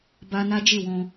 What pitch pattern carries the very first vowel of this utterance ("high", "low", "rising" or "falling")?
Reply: high